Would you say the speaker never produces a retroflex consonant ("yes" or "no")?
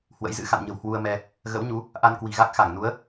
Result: yes